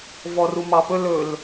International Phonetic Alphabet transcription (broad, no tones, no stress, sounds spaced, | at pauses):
v ɔ r u m ɑ p ɵ l ɵ l